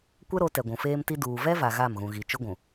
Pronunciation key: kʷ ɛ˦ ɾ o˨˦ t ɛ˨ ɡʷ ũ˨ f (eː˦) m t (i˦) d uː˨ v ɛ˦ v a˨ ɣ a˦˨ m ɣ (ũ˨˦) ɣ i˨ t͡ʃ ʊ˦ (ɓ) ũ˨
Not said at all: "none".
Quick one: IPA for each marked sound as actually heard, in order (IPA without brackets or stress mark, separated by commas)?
eː˦, i˦, ũ˨, ɡʷ